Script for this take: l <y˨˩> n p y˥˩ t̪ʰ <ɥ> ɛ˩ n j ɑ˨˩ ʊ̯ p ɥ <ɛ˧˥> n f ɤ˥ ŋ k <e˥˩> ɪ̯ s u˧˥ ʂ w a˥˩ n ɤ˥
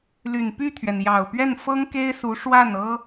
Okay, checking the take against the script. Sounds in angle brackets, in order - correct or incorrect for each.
correct, correct, incorrect: ɛ˥˩, incorrect: e˥

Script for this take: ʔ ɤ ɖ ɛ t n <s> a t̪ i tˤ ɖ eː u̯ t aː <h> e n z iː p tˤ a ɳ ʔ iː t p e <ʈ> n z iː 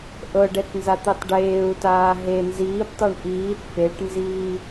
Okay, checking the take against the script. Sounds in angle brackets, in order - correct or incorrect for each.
incorrect: z, incorrect: ɦ, correct

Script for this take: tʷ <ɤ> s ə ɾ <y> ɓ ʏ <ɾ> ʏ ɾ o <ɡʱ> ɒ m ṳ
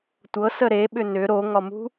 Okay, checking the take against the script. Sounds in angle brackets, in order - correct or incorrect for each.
correct, incorrect: e, incorrect: n, incorrect: ŋ

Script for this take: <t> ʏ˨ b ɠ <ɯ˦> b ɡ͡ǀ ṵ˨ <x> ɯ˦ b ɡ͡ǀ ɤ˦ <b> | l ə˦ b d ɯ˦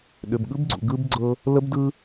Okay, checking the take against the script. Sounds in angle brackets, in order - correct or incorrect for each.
incorrect: ɗ, correct, incorrect: ɡ, incorrect: none

